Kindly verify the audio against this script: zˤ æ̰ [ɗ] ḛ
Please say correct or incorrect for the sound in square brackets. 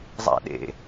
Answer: correct